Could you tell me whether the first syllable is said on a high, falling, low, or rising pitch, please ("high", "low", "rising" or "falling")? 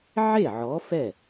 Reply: falling